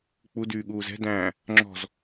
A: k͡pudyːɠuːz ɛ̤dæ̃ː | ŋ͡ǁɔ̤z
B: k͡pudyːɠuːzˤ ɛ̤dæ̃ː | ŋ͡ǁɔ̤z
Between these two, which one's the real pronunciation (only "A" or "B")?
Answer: A